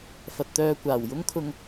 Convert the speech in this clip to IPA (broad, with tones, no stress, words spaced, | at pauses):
fɐ˧t̚ t̪œː˧kʷaː˨˩w jʊ˥ŋkʰʊ˧ŋ